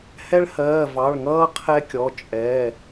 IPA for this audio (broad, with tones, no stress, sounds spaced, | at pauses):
h ɛ˦ ɭ h ɜː˩˧˩ v ɑ˩˧˩ ɭ ŋ ʌː˦ qʰ ɛ˦ kʲ ɔ˩˧˩ t͡ʃʼ ɛ˩˧˩